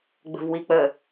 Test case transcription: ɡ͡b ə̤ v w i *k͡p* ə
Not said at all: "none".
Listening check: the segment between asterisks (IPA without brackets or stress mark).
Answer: k͡p